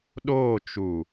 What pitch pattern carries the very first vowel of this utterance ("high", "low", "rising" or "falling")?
falling